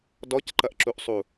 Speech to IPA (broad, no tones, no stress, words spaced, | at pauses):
dɔcǃɐʔǁuʔsˤu